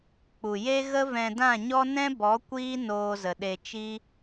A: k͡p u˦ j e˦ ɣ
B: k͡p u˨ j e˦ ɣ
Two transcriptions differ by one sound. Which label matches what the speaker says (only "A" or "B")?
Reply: B